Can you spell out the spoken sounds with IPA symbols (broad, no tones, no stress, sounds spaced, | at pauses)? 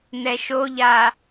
n ɛ ʃ o ʎ aː